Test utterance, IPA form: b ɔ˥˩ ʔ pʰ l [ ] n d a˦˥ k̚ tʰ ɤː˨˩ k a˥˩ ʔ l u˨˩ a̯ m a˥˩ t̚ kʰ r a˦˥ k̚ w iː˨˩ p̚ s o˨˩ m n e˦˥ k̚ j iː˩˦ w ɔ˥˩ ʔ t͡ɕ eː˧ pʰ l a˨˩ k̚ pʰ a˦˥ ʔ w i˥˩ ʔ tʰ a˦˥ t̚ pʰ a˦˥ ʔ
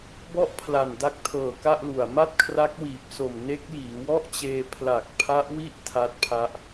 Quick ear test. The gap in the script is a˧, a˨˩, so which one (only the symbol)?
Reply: a˨˩